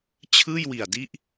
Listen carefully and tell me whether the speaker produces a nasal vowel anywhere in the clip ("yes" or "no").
no